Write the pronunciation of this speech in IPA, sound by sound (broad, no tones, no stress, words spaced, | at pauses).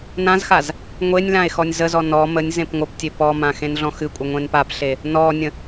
nãzxaz | ŋʷenʲlãe̯ xɔnʲzəzɔ nɔ mənʲ zẽpŋʷəptʲe pɔmã xẽnɮɔ̃xɨkʷʼə ŋʷẽnpapɬe | nɔnʲə̃